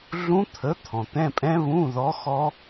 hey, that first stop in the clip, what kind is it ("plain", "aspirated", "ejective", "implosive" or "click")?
aspirated